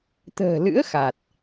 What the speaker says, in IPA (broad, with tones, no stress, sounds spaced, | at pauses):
t̪ ə̤ː˨˩ l ɨ̰˧˥ ə̯ x a˨˩ t̚